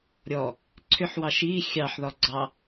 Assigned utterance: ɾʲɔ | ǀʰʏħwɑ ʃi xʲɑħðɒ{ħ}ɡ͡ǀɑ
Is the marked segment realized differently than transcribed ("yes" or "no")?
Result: yes